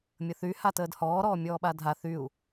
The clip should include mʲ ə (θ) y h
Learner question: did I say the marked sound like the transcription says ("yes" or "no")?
yes